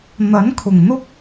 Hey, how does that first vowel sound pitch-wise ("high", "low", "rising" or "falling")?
rising